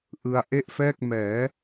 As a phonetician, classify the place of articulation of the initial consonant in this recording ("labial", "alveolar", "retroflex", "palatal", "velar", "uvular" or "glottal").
glottal